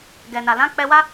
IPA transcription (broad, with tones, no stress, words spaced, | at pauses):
ɡɛ˨na˨ lã˨˦k͡pɛ˧wa˦